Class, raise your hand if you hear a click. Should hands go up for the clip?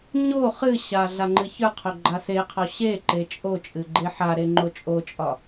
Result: yes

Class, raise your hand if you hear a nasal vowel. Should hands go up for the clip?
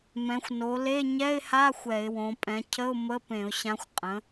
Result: yes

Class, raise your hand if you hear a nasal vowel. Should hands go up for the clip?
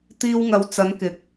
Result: no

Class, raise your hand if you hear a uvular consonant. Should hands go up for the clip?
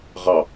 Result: yes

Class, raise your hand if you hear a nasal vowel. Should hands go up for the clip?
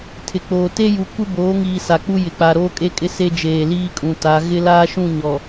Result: yes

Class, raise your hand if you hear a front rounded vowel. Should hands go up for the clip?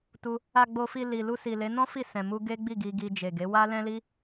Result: no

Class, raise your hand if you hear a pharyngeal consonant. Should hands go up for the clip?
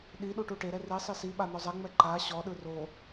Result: no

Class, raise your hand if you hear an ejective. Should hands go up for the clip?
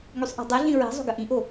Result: no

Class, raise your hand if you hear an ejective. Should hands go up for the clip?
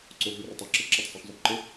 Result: no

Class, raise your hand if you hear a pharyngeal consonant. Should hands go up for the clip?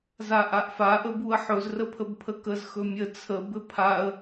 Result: yes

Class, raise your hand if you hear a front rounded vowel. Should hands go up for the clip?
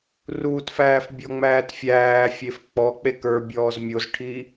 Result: no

